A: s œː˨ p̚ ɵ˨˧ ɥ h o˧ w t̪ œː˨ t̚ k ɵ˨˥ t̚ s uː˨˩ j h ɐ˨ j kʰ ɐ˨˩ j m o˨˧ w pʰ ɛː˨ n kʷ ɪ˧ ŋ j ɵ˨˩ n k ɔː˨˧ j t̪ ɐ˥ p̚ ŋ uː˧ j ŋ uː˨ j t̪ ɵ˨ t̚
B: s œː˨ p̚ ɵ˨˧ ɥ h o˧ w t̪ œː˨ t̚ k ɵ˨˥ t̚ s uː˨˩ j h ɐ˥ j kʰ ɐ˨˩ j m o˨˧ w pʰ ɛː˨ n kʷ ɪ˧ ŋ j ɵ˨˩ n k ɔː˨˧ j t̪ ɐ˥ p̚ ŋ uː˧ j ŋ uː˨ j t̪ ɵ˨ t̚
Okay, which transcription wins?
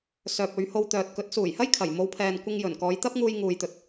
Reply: B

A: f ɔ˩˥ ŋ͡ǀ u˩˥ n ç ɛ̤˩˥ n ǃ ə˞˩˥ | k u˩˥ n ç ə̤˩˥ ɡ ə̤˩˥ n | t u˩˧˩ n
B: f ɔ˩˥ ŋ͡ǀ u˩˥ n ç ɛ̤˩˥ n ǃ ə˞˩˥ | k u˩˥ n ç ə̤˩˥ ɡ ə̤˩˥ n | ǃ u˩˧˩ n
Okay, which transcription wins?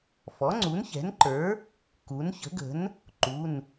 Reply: B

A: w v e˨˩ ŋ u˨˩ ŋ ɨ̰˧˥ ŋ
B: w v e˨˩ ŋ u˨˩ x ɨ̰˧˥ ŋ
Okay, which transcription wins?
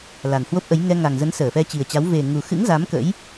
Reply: B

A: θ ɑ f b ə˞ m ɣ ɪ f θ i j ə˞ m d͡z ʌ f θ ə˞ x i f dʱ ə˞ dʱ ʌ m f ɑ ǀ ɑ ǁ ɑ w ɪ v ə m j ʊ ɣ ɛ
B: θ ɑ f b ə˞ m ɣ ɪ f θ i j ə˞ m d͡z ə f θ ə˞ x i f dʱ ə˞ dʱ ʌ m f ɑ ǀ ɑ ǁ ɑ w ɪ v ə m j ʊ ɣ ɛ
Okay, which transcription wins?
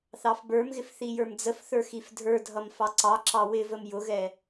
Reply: B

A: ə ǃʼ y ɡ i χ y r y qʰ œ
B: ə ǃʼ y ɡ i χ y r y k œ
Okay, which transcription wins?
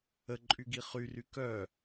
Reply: B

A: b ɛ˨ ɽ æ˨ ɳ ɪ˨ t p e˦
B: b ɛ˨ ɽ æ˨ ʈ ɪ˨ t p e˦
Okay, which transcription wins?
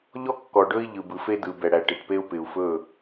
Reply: B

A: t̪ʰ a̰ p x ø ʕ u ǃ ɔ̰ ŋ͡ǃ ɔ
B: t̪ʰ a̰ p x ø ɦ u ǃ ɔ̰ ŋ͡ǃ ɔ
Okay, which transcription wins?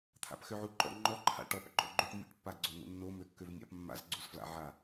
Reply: A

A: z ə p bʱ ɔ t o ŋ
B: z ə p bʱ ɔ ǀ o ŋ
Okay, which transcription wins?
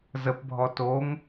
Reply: A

